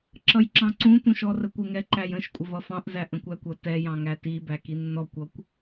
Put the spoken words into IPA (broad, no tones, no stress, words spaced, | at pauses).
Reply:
ǁʌjǁɑ̃ǀũ tũʃɔrəkʷɪ ŋɛǃæjə̃ʃ kʷʼɪvʌfɑ̃ʔ zæʔə̃kʷækʷʌ tɛ jɑ̃ŋæti bækinːɔkʷ ʌkʷ